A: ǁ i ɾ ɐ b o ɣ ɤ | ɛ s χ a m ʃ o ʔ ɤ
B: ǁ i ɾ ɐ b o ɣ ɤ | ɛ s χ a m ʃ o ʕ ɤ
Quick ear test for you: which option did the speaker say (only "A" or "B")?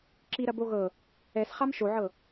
B